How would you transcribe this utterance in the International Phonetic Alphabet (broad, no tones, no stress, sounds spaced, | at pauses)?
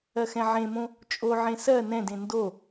ɜ x ɛ̃ ʕ ẽ m õ | t͡ʃʼ o ʕ ẽ s ɜ n ɛ̃ d ẽ n d o